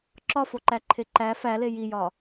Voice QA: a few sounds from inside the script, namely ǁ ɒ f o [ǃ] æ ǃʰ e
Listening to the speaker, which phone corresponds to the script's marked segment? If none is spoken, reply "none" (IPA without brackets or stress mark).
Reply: ǃ